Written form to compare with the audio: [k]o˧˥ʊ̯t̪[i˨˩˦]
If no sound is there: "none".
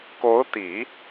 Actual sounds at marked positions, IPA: k, i˨˩˦

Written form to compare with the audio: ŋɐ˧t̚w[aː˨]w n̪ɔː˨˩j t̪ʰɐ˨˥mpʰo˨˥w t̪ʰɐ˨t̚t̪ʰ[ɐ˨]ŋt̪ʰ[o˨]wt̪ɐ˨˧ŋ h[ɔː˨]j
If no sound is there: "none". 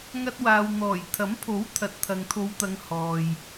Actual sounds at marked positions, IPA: aː˨, ɐ˨, o˨˧, ɔː˨

